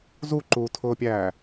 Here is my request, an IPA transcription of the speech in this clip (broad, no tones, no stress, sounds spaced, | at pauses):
z u ǃ uː tʰ ʊː pʲ æː